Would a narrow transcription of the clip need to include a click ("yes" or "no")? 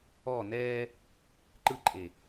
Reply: yes